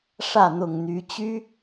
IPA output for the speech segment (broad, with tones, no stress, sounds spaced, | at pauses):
ʂ ä˥˨ n̪ ʊ˨˩ ŋ n̪ y˨˦ t͡ɕ y˦